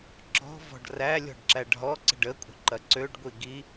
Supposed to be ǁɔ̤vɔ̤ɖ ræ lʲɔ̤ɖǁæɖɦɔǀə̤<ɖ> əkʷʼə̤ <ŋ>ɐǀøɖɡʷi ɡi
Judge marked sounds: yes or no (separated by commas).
yes, no